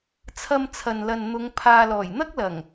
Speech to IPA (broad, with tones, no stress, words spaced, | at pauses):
t͡sʰɐ˧mt͡sʰɐ˨nlɐ˨n n̪ʊ˨˧ŋ pʰaː˨lɔː˨˩jn̪ɐ˥k̚lɐ˨˩ŋ